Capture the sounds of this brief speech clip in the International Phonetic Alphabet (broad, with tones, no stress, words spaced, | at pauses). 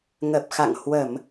ŋə˨˩p̚xa̰˧˨ŋ hwə˧˩˨m